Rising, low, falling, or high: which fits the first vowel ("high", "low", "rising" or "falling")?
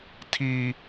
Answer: high